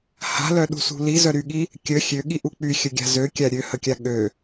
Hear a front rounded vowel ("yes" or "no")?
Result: yes